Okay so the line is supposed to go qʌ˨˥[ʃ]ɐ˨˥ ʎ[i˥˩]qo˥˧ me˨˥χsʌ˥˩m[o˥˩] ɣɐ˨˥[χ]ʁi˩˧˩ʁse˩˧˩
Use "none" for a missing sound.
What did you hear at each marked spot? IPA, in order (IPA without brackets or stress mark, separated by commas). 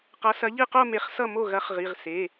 s, i˥˧, o˥˩, χ